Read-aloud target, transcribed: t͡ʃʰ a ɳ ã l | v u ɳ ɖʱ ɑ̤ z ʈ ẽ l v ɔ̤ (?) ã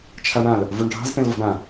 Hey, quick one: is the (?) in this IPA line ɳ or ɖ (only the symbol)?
ɳ